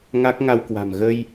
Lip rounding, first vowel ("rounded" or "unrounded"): unrounded